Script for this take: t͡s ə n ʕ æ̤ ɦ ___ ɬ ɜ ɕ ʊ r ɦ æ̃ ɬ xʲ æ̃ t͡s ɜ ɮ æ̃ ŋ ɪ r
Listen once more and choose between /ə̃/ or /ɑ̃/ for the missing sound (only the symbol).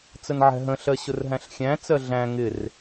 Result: ə̃